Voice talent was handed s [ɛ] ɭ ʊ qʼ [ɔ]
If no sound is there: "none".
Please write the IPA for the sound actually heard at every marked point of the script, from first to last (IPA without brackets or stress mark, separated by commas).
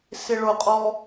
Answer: ɪ, ɔ